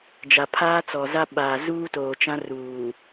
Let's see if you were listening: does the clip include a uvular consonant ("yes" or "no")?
no